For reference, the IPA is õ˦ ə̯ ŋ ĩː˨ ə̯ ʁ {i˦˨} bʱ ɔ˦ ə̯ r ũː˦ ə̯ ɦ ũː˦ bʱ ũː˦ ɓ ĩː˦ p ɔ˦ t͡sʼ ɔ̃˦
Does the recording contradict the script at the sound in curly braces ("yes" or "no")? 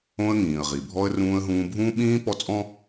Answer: yes